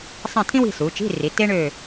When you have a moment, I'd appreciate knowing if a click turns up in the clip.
no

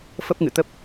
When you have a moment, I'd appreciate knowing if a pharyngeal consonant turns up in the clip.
no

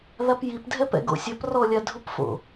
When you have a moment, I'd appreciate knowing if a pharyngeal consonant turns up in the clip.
no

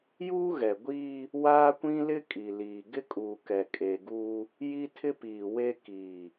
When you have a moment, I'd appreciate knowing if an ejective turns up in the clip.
yes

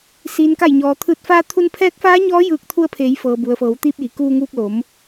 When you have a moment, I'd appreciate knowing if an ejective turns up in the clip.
no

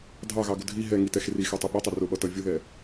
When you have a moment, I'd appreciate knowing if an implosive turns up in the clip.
yes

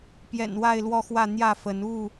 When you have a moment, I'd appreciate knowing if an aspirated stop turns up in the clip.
no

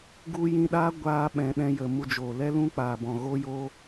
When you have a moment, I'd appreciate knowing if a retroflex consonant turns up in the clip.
no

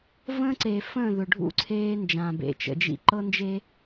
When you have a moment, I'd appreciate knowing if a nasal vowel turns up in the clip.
yes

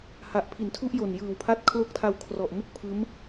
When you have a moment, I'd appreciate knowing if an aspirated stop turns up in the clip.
yes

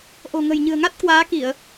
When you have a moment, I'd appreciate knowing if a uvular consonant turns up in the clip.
no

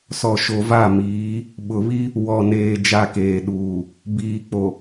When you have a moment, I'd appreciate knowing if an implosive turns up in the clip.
yes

